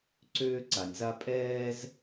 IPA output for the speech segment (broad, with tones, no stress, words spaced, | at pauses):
ǀøː˧ǀa˩nʲza˧ pʼɛː˧z